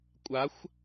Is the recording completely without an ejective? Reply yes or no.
no